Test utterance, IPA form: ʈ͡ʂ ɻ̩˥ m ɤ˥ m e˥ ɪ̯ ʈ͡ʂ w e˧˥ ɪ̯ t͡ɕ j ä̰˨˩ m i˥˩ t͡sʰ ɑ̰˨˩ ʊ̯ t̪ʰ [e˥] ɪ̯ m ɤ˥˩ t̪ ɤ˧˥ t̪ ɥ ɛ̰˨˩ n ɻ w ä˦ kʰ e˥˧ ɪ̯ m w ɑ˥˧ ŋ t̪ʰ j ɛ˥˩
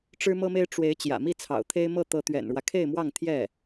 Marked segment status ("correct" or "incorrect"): correct